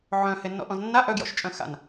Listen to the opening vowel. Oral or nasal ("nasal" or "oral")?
nasal